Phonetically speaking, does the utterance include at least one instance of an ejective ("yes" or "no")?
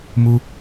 no